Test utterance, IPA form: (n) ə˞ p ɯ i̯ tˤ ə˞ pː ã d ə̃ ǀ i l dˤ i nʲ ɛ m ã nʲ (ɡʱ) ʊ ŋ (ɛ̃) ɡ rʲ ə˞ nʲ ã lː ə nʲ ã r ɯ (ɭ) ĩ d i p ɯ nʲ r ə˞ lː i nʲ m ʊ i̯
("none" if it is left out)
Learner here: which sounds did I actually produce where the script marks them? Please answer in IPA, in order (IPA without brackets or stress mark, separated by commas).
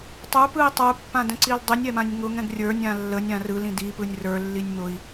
tˤ, ŋ, ɛ̃, l